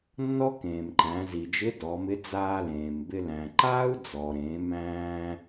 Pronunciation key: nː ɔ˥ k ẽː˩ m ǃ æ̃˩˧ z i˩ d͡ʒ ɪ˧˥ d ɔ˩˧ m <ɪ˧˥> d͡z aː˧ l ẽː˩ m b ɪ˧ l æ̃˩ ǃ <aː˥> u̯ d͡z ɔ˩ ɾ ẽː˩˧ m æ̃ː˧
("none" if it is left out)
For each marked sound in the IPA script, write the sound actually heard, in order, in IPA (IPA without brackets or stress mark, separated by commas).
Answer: ɪ˧˥, aː˥